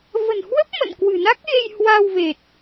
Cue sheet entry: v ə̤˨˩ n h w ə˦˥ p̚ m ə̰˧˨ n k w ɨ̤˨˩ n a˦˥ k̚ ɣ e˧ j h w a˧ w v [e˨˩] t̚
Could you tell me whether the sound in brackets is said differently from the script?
no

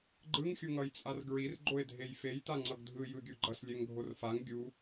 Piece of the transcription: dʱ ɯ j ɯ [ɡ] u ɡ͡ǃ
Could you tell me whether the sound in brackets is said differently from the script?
yes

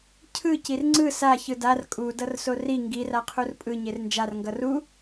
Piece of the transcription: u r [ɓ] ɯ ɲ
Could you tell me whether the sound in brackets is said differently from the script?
yes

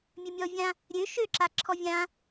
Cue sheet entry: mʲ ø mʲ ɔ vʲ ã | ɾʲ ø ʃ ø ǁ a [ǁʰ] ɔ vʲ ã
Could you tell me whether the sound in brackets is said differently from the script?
no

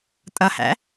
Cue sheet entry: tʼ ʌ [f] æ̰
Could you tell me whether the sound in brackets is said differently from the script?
yes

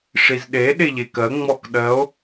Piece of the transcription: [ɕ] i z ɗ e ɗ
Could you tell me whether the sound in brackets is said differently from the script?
yes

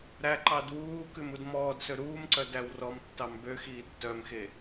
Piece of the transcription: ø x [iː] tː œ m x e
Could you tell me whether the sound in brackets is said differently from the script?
no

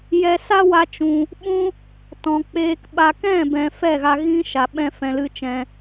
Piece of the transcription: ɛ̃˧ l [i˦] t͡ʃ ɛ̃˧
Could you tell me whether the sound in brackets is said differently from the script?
yes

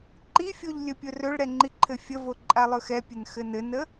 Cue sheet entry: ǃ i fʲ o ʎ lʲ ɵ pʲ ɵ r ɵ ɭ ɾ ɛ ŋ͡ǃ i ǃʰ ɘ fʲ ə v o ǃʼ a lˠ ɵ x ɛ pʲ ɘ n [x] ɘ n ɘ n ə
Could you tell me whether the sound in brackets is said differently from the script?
no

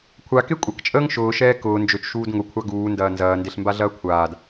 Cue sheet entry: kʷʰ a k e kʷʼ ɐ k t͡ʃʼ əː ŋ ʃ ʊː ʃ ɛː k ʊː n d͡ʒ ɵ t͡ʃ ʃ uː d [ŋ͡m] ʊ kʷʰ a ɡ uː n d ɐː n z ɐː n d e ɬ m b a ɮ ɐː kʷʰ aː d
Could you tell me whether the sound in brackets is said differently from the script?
yes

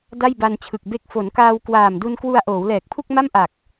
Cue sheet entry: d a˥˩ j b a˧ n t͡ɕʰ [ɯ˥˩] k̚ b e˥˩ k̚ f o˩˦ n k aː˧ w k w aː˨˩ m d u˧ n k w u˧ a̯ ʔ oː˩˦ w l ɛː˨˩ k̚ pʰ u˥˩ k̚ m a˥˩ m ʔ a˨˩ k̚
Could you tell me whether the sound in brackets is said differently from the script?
yes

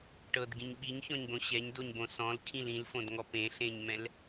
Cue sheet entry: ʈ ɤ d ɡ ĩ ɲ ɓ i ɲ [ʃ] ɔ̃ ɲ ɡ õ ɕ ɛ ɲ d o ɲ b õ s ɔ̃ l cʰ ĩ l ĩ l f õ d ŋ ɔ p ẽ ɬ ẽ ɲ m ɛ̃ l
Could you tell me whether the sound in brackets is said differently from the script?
yes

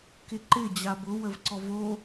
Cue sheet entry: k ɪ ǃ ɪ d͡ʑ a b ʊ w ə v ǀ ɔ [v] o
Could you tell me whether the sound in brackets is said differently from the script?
no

